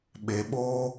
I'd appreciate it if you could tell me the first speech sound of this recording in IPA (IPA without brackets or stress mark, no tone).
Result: ɓ